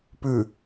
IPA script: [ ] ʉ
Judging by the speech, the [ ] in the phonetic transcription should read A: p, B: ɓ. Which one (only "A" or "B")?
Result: A